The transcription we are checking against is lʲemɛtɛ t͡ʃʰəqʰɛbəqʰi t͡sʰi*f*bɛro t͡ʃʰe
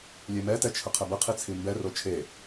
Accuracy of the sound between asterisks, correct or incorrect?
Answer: incorrect